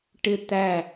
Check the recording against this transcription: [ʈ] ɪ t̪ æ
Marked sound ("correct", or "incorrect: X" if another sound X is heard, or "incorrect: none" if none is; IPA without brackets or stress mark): correct